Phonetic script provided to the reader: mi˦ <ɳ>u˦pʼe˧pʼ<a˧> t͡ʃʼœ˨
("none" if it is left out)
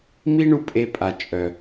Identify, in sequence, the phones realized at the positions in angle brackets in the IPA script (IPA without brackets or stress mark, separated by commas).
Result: ɳ, a˨